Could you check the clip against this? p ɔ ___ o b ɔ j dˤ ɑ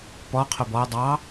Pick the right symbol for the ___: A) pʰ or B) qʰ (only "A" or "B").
B